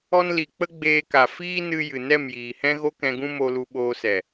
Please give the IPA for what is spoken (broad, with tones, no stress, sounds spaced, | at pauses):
ɔ˧ n l i˨ k͡p ə˦ ɡ͡b eː˧ k a˨ f iː˦ n ɨ˧ j ɨ˨ n ɛ˦˨ m j iː˨ h ɛ̃˦ ɣ o˦ k ɛ̃˧ ɡ ũ˦ m o˧ l u˧ ɓ oː˧ s ɛ˨